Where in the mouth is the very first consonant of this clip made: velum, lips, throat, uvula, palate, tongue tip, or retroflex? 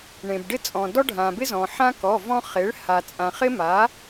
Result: retroflex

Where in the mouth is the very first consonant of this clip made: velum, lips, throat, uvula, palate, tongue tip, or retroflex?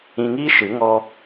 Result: velum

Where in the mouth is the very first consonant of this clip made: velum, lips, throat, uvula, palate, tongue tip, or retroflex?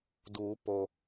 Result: tongue tip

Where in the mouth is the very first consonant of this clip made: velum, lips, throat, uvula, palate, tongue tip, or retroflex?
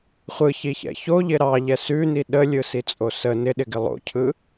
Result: uvula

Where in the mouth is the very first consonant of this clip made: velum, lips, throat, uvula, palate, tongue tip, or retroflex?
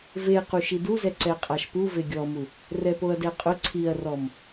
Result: lips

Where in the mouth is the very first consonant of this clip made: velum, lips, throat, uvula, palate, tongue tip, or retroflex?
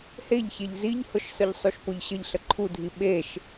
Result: throat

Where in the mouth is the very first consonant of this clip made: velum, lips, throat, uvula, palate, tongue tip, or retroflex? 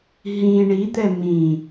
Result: throat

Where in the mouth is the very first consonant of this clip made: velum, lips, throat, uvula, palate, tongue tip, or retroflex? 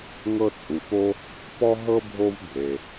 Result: velum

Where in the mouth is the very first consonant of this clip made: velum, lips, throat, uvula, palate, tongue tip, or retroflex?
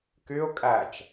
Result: velum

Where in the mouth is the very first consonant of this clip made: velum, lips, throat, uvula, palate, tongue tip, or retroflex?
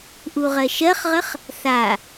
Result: throat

